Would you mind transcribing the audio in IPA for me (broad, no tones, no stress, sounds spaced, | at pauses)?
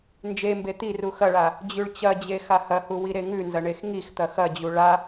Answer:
n d͡ʒ e m b e t̪ i r u x ɐ ɭ a | d͡ʑ ʉ ɭ t͡ɕ ɐ d͡ʑ e x a h ɐ h u w i ɾ e ŋ ʉ n z ɐ ɳ e x ŋ i x t̪ ɐ x ɐ d͡ʑ u ɭ a